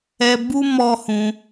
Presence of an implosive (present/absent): absent